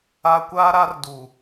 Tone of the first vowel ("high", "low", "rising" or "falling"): high